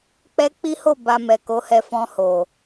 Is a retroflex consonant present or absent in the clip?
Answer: absent